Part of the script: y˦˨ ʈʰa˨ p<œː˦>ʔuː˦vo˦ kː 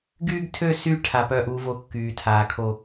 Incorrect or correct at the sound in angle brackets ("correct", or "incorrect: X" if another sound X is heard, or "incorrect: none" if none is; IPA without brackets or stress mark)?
correct